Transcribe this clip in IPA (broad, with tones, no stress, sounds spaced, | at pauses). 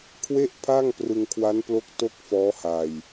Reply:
kʰ w e˥˩ ʔ pʰ a˥˩ ŋ p r ɯ˧ ŋ kʰ w a˦˥ n p l o˦˥ k̚ t o˥˩ k̚ f ɔː˦˥ h a˧ j